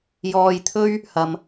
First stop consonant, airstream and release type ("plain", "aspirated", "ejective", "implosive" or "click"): aspirated